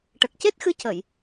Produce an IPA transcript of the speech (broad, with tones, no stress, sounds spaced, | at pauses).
ʈ ə˨˩ k̚ c e˦˥ t̚ x ɨ˧˥ c ə˨˩˨ j